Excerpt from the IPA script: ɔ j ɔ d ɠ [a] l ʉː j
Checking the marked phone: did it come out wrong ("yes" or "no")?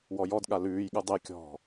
no